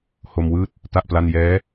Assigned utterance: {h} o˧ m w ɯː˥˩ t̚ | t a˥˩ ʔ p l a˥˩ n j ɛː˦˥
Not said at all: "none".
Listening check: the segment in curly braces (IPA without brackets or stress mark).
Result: h